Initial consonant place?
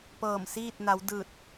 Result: labial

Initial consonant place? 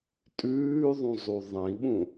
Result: alveolar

